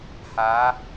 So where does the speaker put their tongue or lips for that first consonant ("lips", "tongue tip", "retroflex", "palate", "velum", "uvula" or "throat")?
throat